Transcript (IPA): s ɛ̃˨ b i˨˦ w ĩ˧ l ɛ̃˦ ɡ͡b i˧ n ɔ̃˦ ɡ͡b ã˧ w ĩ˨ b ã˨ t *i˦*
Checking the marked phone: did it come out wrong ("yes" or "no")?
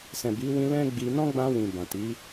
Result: yes